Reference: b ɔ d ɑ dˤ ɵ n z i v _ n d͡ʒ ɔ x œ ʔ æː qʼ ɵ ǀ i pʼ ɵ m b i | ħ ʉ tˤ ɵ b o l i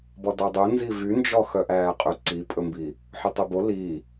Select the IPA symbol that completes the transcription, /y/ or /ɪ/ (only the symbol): y